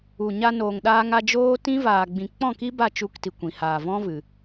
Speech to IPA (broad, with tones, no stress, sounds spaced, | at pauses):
u˨ ɲ a˧ n oː˨ ŋ ɗ aː˧ ŋ a˧ d͡ʒ oː˦ t ĩ˦ v aː˨ ɡ͡b ĩ˨ k͡p ɔ̃˦˨ k i˦ b a˦˨ t͡ʃ u˧ k t i˨ kʷ ĩ˨ h aː˨ v ɔ̃˦ v ɨ˨